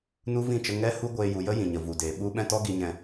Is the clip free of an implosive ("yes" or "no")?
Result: no